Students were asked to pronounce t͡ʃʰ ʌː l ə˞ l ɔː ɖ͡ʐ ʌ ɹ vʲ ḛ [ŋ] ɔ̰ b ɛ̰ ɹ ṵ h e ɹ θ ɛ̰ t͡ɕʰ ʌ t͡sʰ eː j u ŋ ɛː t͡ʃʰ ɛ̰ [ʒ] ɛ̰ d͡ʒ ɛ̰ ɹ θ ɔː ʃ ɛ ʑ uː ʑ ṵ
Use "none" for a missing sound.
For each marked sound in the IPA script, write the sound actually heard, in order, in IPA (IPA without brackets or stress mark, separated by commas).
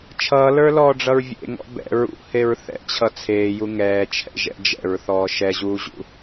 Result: ŋ, ʒ